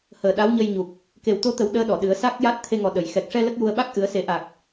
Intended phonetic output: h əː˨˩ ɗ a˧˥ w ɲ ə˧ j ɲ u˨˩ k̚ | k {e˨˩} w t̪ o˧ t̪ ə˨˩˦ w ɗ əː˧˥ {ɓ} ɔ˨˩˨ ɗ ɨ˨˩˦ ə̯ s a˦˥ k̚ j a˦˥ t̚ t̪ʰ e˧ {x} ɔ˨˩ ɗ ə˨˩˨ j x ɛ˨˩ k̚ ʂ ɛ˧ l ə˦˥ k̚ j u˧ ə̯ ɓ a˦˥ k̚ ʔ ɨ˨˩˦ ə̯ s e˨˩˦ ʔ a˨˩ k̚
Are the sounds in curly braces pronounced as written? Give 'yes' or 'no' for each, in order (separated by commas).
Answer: yes, no, no